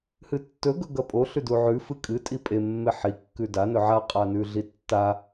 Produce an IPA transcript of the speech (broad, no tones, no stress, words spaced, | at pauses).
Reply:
hɨtːɵ ɡɵɡɐpʼo ɬʉduʕʉ fɨkʼɨ tʼipʼe mːeħi kːʉda nɵʕa qʼanʉɮitːa